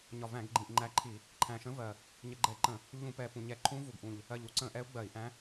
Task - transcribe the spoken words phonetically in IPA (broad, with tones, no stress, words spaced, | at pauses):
ɲɒ˨˩væ̃˧˩˧ɡɡ͡ǃĩ˨˩ʔ ŋ͡ǃæ˧˥ǃʰi˧˩˧ | ǃʰæ̃˨˩ʃə̃˧˥vɜ˨˩ | ɲə˧˩˧ɡ͡ǃɛ˧˩˧ǃə̃˧˩˧ | ʎũ˧˩˧pɛ˨˩pũ˨˩ɲɛ˧˩˧ ǃʰũ˧˥vu˨˩ɡʔũ˨˩ʎ | ɜ˨˩ʎu˧˩˧ǀə̃˧˩˧ʔɛ˧˥u̯ ɡ͡bɜ˧˩˧i̯ʔæ̃˧˥